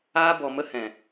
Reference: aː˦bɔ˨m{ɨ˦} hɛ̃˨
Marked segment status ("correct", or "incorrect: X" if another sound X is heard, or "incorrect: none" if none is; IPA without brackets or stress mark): incorrect: ə˦